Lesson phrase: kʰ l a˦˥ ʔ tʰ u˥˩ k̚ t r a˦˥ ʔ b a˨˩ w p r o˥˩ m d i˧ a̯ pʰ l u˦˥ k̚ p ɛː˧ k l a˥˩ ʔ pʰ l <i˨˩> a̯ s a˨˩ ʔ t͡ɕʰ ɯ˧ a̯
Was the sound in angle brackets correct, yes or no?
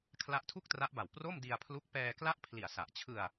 yes